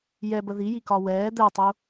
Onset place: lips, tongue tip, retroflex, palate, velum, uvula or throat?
palate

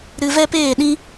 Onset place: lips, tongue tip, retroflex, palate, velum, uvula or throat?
tongue tip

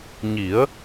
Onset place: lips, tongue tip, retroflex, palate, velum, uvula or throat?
palate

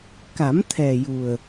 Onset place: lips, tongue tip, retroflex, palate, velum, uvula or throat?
velum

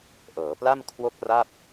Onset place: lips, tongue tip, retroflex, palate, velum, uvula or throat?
throat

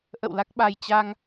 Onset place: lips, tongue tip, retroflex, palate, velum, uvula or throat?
throat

